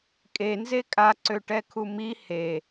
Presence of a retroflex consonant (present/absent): present